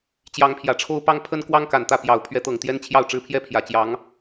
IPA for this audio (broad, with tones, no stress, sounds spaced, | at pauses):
t͡ɕ j ɑ˧˥ ŋ pʰ j ä˨˩ ʈ͡ʂʰ o˥ ʊ̯ p ɑ˥ ŋ pʰ ə˥ n k w ɑ˥ ŋ k a˨˩ n t̪ ä˥˩ p j ɑ˨˩ ʊ̯ pʰ ɥ ɛ˧˥ t̪ ɤ˨˩ ŋ t̪ j ɛ˥ n t͡ɕʰ j ɑ˥˩ ʊ̯ ʈ͡ʂ ɻ̩˥ pʰ j ɛ˥ pʰ j ä˨˩ t͡ɕ j ɑ˧˥ ŋ